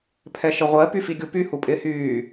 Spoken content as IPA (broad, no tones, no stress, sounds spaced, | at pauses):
pʰ ɛ ʃ ə ʁʷ ɜ p y f i ɡʲ u p y h u pʼ ɪː h yː